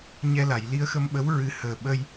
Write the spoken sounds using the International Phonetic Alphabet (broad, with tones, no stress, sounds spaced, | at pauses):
ɲ ɛ˧ l a˨˩˨ j l i˧ ə̯ x ə˧ m ɓ ə˧˥ w ɹ ɨ˨˩˦ h əː˨˩ ɓ ə˧ j